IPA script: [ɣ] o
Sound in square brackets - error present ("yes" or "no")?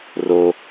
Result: yes